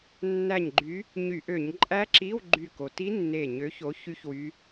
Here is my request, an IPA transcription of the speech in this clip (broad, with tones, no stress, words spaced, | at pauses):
nːæ˧˩ɲɡ͡ǃy˨˦ | ɲy˧˩˧ʔø˧˩˧ɲ ǃʼæ˦˥ǁi˧˥˧w ɡ͡ǃy˧˩ko˩ ti˦˥nːe˧˩ɲø˨˦ço˨˦ çy˦˥çwy˨˦